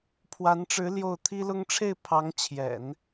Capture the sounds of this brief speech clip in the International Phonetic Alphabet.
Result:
pʰwa˧˥nʈ͡ʂɻ̩˧˥ ljo˥˩ʊ̯ t̪ʰi˥lʊ˥ŋ ʈ͡ʂʰe˥˩ɪ̯pʰɑ˧˥ŋt͡ɕʰjɛ̰˨˩˦n

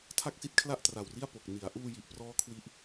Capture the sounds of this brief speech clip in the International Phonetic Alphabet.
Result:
tʰa˥˩k̚si˦˥t̚kʰla˥˩ʔ tra˨˩wri˥˩a̯ po˨˩k̚ ni˩˦a̯ʔuː˧ji˨˩ʔprɔː˦˥ kʰwi˥˩ʔ

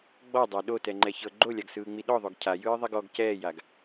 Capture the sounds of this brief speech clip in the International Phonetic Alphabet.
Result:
ɡ͡bɔdˤa ɗotɛŋ͡ǃɛçɤ ɡ͡ǃolʲaɡsɯːŋ͡mi ɗɔðˤoɡ cʰajɯːðˤiɡ ɔɡ cɛːjaɡ

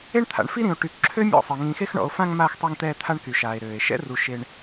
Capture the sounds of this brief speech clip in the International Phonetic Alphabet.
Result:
e˦ɳt̪ʰa̰˨ɳfi˦ɾĩ˨o̯ ʈy˨kǁʰø˦ mʲɔ̰˦˨sˤe˨ ŋĩ˨xe˧xɳɔ̰˨o̯fã˧ŋ maː˧xtˤø˧ŋt̪ɛː˧ t̪ʰa˦ɳky˨ʃaː˨e̯ ɾøː˨e̯ ʃɛ̰˦ru˨ ʃe˧ɳ

